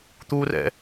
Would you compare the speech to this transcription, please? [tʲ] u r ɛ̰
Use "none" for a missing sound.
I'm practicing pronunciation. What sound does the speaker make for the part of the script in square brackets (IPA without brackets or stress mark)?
t̪